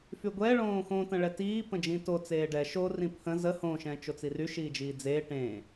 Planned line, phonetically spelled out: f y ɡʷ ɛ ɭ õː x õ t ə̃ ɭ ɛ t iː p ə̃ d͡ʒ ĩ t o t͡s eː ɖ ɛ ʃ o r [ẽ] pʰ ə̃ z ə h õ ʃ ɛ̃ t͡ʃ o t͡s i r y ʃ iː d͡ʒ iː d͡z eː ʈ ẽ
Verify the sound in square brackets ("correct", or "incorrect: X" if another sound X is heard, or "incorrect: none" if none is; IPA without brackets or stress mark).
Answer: incorrect: ĩ